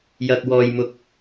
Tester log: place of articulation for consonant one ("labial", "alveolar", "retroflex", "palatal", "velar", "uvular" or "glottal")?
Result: palatal